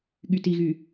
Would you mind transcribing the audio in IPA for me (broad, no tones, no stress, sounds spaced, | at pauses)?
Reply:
ɠ y t i ɣ y